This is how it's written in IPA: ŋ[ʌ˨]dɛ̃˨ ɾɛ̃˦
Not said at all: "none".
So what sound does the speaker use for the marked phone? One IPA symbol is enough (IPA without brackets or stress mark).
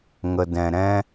ə˨